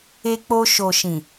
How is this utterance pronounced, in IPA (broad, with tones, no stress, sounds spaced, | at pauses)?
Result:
e˧ k͡p o˧ ʃ o˨ ʃ ĩ˨